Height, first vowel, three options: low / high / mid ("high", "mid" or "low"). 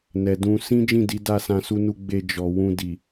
mid